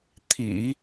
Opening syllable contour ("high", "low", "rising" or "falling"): low